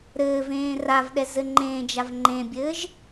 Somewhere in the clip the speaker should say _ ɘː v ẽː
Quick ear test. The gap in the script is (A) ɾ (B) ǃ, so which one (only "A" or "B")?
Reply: A